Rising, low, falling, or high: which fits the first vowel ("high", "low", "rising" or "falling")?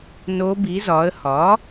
rising